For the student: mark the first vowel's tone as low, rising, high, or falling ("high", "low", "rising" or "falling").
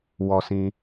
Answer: low